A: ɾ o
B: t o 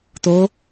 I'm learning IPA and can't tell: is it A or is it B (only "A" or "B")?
B